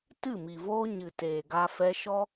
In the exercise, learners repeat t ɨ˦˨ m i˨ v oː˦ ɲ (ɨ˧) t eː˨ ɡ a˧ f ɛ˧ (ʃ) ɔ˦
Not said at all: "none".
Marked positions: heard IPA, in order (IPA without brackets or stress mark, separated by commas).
ɨ˨, ʃ